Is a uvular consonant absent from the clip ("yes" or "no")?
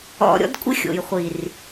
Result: no